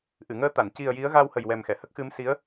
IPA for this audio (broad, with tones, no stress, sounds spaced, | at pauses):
ʔ ɨ˨˩˨ ŋ əː˧˥ t̪ a˨˩˨ n c i˨˩ ə̯ j i˧˥ ə̯ ɣ a˧ w h ə˨˩ j w ɛ˨˩ m x ɛ˨˩˨ h ə˦˥ k̚ x ɨ˧˥ m s i˧˥ ə̯